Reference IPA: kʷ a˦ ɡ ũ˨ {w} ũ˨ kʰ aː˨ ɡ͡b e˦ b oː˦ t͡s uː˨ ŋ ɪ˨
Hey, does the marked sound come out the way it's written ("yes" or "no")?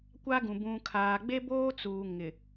no